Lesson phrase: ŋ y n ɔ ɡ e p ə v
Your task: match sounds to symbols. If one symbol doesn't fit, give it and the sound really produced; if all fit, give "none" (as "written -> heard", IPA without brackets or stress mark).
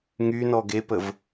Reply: none